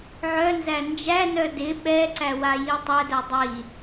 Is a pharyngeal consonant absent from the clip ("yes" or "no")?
no